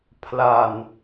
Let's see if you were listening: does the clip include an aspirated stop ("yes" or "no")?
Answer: yes